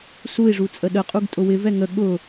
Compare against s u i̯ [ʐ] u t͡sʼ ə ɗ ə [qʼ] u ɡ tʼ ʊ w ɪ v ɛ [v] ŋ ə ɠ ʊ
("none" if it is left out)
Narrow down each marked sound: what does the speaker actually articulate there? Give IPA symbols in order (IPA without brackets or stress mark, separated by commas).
ʐ, qʼ, none